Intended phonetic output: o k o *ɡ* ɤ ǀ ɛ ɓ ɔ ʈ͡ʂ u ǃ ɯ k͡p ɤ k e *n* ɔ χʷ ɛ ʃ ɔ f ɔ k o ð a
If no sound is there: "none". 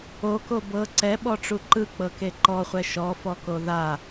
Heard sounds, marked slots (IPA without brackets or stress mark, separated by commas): b, ǃ